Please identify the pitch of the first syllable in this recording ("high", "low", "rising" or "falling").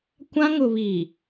high